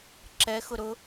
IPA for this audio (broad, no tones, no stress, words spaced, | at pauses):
ǁɛ xʊɾʊ